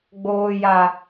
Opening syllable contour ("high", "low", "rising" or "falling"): high